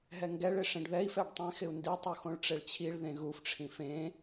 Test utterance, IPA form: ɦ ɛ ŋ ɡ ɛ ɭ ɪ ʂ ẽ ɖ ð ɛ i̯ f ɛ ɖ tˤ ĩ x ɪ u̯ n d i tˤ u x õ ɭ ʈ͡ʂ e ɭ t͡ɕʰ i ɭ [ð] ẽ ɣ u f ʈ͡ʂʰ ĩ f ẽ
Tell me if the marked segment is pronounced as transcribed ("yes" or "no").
yes